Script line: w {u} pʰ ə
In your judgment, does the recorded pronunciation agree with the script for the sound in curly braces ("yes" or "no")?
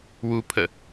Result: yes